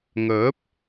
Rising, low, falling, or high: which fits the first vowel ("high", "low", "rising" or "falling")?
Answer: rising